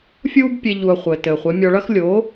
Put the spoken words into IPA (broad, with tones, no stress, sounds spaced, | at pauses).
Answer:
fʲ uː˦ b pʲ e˧ ʎ u˧ ɐ̯ χʷ ɘː˨ t ɘː˨ χʷ e˨˦ mʲ ɔ˧ ɭ ɐ˦ x lʲ o˨˦